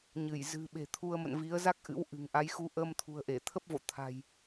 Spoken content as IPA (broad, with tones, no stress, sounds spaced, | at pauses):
ɲ ɨ˧˩ j z ɨ̤˨˩ ɓ e̤˨˩ t̪ʰ u˧ ə̯ m ə̰˧˨ n v i˨˦ ə̯ z a˦˥ k̚ ʔ ɨ̰˧˥ w ʔ ɨ̤˨˩ ŋ ʔ a˨˦ j x u˧ ʔ əː˧ m t̪ʰ ṳ˨˩ ə̯ ʔ e˧˩ t̪ʰ ə˦˥ p̚ v o̰˧˨ t̪ʰ a̤˨˩ j